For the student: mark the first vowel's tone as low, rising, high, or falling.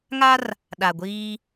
high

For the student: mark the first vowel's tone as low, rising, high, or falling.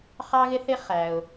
high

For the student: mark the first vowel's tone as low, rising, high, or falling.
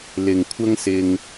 low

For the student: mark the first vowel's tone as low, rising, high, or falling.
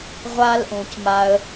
high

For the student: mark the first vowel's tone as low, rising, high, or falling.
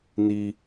high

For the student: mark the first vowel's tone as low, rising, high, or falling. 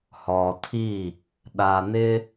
low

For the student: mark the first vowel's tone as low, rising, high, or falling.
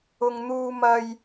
high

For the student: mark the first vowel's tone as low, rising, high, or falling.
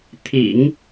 low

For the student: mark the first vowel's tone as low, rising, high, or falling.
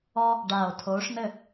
high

